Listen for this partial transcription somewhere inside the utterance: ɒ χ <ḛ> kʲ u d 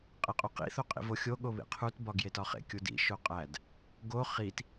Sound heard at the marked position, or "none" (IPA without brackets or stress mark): ḛ